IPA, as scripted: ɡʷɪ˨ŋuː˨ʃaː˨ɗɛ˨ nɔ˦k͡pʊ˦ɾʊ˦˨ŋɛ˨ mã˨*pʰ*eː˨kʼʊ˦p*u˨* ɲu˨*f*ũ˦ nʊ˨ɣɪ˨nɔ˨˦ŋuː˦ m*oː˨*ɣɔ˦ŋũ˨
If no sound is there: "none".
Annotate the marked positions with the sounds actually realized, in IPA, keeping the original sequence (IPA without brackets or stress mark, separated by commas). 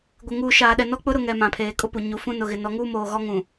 pʰ, u˨, f, oː˨